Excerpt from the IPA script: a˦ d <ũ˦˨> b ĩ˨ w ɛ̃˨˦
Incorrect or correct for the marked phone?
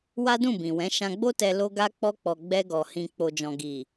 correct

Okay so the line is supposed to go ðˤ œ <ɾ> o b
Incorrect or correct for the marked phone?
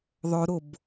correct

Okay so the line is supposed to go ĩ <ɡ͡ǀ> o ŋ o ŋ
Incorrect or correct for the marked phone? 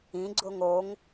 correct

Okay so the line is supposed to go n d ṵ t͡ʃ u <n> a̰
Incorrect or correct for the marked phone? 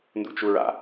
incorrect: ɹ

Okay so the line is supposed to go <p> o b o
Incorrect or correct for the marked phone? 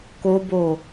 incorrect: k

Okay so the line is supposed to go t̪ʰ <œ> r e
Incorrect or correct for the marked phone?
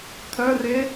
correct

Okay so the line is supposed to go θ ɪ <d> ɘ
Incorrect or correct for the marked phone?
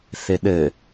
incorrect: ɗ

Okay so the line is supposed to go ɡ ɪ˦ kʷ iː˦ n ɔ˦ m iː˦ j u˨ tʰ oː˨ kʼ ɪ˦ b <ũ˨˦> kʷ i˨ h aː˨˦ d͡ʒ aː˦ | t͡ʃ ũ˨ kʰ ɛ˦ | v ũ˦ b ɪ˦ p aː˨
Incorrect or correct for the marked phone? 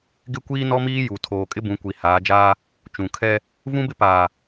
correct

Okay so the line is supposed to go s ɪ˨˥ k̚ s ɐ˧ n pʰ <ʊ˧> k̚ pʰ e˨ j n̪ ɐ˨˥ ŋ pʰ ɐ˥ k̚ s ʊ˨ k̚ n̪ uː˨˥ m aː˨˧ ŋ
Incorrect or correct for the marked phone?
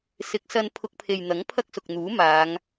correct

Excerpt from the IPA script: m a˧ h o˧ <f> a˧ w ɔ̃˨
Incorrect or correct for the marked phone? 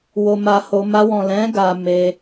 incorrect: m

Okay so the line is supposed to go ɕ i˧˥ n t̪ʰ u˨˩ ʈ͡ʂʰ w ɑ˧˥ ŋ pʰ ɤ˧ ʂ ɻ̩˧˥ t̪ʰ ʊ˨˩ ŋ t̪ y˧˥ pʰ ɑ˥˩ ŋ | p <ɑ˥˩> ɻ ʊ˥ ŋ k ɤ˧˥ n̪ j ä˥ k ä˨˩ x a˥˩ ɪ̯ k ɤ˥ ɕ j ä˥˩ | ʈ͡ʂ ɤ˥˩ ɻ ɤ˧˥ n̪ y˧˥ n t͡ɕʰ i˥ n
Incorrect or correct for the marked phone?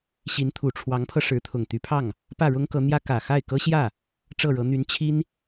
incorrect: ä˥˩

